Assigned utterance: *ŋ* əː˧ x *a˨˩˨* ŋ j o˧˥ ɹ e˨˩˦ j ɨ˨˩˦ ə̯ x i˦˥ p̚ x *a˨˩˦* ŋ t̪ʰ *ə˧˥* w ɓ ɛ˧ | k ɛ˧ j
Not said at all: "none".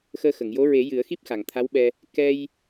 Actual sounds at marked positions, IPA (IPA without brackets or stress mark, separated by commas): x, ə˨˩˨, a˨˩, a˧˥